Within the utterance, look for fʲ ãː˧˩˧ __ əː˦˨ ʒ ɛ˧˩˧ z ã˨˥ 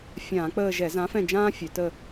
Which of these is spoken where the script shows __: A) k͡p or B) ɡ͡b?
A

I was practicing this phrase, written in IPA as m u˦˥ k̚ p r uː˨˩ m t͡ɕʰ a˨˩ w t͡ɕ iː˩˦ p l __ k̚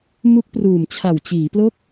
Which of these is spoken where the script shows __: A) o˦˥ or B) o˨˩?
A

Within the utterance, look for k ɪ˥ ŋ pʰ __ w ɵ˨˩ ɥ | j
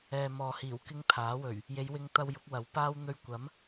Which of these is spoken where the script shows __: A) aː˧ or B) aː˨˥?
B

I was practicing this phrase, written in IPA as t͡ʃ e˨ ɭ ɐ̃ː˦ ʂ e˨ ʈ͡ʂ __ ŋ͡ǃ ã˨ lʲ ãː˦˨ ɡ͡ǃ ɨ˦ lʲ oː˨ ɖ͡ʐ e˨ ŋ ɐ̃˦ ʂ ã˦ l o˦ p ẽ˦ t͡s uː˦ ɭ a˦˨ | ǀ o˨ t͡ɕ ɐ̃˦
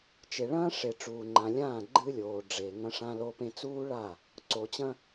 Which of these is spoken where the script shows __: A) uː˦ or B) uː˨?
B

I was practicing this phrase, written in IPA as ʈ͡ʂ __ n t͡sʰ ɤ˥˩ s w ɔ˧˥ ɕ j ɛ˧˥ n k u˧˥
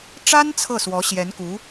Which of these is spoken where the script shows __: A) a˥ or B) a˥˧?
A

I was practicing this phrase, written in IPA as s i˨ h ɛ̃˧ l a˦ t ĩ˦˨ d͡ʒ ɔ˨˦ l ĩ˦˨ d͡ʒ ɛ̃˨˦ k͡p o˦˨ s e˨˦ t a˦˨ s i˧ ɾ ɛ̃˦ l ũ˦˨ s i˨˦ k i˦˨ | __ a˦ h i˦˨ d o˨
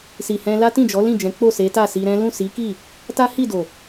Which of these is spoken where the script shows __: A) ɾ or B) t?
B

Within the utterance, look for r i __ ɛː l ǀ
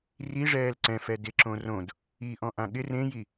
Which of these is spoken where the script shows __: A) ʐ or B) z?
A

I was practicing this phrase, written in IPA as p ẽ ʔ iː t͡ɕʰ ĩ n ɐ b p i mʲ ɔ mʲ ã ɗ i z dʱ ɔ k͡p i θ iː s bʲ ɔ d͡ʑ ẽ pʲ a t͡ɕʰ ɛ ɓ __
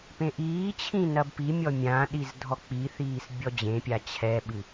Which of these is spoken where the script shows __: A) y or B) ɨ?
B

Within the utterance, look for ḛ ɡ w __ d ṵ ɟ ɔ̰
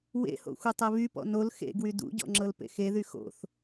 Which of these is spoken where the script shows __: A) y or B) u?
A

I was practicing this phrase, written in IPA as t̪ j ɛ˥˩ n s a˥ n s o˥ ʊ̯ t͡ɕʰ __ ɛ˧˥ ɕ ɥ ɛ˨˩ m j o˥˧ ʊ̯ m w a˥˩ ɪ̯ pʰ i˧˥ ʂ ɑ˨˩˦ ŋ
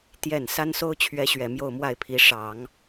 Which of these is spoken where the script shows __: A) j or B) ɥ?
B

